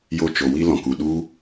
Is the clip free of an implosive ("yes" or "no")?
no